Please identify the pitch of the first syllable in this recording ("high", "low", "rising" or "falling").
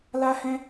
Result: high